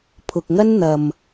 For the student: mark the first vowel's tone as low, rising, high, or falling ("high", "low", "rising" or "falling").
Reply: low